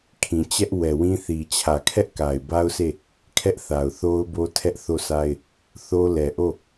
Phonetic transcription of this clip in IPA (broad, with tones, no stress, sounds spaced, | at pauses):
kʰ ĩ˨ t͡ɕ ɛ˦ ʔ w ɛ˨ w ĩ˦ θ i˨ t͡ɕʰ ä˨ kʰ ɛ˦ ʔ k a˨ ɪ̯ b a˦ ʊ̯ sʰ e˦˨ | kʰ ɛ˦ ʔ θ a˨ ʊ̯ θ o˦ ʊ̯ b o˦ tʰ ɛ˦ ʔ θ o˦˨ sʰ a˦ ɪ̯ | θ o˦ l ɛ˨ ʔ o˦˨